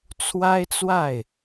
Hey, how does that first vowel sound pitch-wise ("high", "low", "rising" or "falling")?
high